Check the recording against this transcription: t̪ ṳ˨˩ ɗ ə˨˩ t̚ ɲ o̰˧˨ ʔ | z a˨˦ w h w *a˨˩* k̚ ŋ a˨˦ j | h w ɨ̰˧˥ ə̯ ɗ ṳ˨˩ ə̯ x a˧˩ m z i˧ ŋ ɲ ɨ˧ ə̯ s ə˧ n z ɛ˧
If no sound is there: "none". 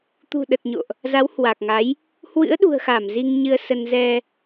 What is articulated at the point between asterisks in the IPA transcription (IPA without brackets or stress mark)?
a˨˩